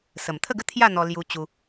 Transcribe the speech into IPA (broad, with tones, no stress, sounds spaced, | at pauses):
s ə˨˩ m t̪ʰ ə˥˧ ɡ ə˦ t̪ʰ j a˥˧ n̪ ɔ˧ l j u˧ t͡ɕ u˧